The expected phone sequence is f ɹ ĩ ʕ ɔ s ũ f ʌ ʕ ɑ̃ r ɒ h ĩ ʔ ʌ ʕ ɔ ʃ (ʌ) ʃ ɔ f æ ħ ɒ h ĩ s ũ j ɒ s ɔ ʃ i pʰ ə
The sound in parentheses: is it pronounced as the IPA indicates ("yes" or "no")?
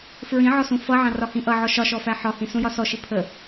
no